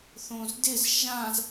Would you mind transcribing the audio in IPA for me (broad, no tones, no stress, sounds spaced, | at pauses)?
θ õ z d ɪ z ʒ ã z